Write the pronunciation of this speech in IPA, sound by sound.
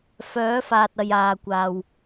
f œː˨˥ f aː˨ t̚ ɐ˨ j aː˨ kʷ aː˨ w

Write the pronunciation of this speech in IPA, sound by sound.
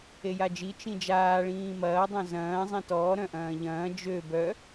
e j a d͡ʒ i t͡ʃ ĩ d͡ʒ aː ɭ ĩː m ɐː dˤ œ̃ z ɐ̃ː zˤ ĩ t ɔː ɾ œ̃ ʔ ɐ̃ː ʎ ɐ̃ː d͡ʒ ø b œ

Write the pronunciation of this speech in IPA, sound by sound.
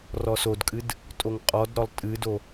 r ɔ s o d kʼ ɨ d | tʼ o ŋ qʼ ɔ d ɾ ɔ lˠ tʼ ɨ d o

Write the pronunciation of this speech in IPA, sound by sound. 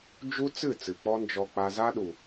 d͡ʒ u˦ t͡s ɨ˦˨ t͡s ɨ˨ k͡p ɔ˦ n d͡ʒ ɔ˧ k͡p a˧ z a˦ ɗ u˨

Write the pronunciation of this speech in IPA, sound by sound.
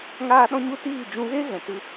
ŋ aː˦ ɗ ɔ̃˦ ɲ u˦ t iː˦˨ d͡ʒ ũ˧ ɣ e˦ ɣ ɛ̃˨ t ɨ˦

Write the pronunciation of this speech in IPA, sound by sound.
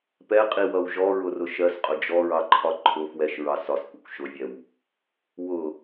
p ɛ qʼ i w ʌ w ʒ ɔ ɹ ʊ r ʊ ʃ ɜ s qʼ ʊ d͡ʒ ɔ ɹ ɑ ǃʰ ɒ ǃʰ ʊ f w ɛ ʃ ɹ ɑ s ɒ s kʷ ɪ kʷ ʃ ʊ vʲ ɛ w | w ʊ

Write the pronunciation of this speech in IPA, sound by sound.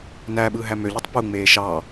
n æ ɓ ɯ ɦ æ m ø ʎ y tˤ p u ŋ͡m eː ʃ ɑ

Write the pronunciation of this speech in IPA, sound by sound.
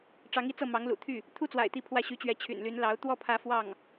ʈ͡ʂ ɑ˧˥ ŋ i˥˧ t͡s ɤ˥˩ m ɑ˧˥ ŋ l ṵ˨˩ t̪ʰ y˥˩ | t̪ʰ u˥ t͡s w a̰˨˩ ɪ̯ t̪ i˧˥ pʰ w ä˥˩ ɕ y˧˥ t͡ɕ ɥ ɛ˧˥ t͡ɕʰ y̰˨˩ n l y˧˥ n l ɑ˧˥ ʊ̯ t̪ w ɔ˥˩ pʰ ä˧˥ f w ɑ˥˩ ŋ

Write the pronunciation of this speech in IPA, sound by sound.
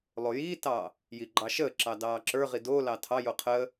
lˠ o j iː t ɑː | j i ɡ͡ǃ ɑ ʃ əː ǁ ɑ d ɑː ǁ ə˞ ʁ i d o l ɑ tʰ ɑ j o qʰ əː

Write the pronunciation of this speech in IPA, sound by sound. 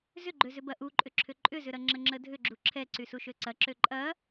z ʏ ɡ͡ǃ ø z ʏ b ɐ ʔ u ǃʼ ʏ ǁʰ ʏ ǃʼ ʏ z ʏ ɾ ɐ ŋ͡ǁ ə ŋ͡ǁ ə dʱ ʏ ɡ͡ǁ u ǁʰ ɛ ǀ y s u ʃ ø ǀ ɐ ǁ ø ǃʼ ɐ

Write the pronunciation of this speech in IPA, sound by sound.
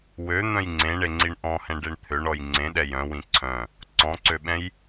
w ø n̪ œ̃ j ŋ͡ǀ ẽ ɳ e ŋ͡ǀ i ɳ ʔ ɔ̃ h ɛ̃ ɖ e ɳ t̪ʰ ø ɳ ɔ j ŋ͡ǀ ẽ ɗ ɛ j œ̃ w ĩ ǀʰ œ̃ | ǀ ɔ̃ ǀ ø ɓ ɛ̃ j

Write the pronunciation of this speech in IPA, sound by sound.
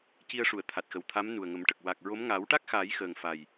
c i˧ ə̯ ʂ u˨˩˨ ə̯ t̪ʰ a˨˩ t̚ x ə˨˩ w t̪ʰ a˧˥ m n u˨˩ ə̯ ŋ ə˨˩˦ m ʈ ə˨˩ k̚ w a˨˩ k̚ ɹ o˧˥ m ŋ a˨˩˦ w ʈ a˦˥ k̚ x aː˨˩˦ j x əː˨˩ ŋ f a˨˩ j

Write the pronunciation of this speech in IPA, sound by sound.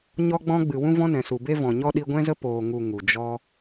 ɲ ɔ˧ ɡ͡b ɔ̃˧ ɡ͡b ɨ˨ w ũ˦ v ɔ̃˦ n ɛ̃˨ s u˨ b e˧ v ɔ̃˨ ɲ ɔ˧ ɗ i˧ ɡʷ ɛ̃˦ z ə˦ p oː˨ ŋ u˨ ŋ u˨ d͡ʒ ɔ˦

